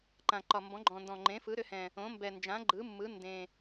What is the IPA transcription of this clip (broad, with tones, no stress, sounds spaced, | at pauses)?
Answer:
ǃ ã˨˩ ǃ ɒ˨˩ m b ɔ̃˩˥ ɡ͡ǃ ɔ̃˨˩ n d ɔ̃˨˩ ŋ͡ǃ ẽ˩˥ f ɯ˩˥ ɾ ʏ˩˥ h ɛ̃˨˩ | õ˩˥ m b ɛ˨˩ n d͡ʒ ã˩˥ ɡ͡ǃ ɯ˩˥ mː ɯ˩˥ n d ẽ˨˩